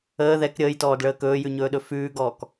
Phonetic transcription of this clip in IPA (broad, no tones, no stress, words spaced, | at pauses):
əː ðɛk ɾʲəːjtɔːdɭəː kɵːjʉɲɵːɗɵ fʉːɡɔːk